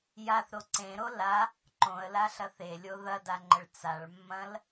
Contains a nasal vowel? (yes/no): yes